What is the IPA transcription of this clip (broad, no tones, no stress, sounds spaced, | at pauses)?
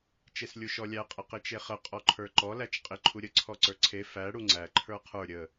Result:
t͡ʃ e s lʲ u ʃ ɔ lʲ æ qʼ ə q ɪ t͡ʃ e χ ə qʼ ɔ ǃʰ ə˞ ǃ ɔ l æ t͡ʃ qʼ ɪ ǃʰ u ɾʲ ə ǀʰ ɔ ǀ ə˞ ǀʰ e f æ ɽ u ŋ͡ǀ æ ǃʰ ə˞ qʰ ə˞ ɾʲ ə